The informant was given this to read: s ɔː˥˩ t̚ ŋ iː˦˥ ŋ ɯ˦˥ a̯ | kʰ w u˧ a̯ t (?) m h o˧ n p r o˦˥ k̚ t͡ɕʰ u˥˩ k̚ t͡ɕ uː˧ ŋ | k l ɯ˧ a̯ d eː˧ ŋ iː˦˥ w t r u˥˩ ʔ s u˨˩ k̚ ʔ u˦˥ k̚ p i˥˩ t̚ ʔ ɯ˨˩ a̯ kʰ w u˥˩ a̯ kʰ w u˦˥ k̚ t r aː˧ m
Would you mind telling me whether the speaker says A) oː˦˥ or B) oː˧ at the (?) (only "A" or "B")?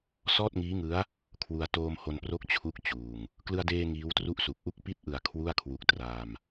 B